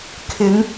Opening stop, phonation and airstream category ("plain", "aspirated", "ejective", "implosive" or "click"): aspirated